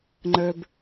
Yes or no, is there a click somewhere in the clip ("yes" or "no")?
yes